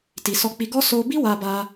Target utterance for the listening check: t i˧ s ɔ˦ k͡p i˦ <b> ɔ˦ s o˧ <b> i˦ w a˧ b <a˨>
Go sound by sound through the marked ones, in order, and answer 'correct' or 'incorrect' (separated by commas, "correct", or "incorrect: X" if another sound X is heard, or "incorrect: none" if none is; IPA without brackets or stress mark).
incorrect: ɡ, correct, incorrect: a˧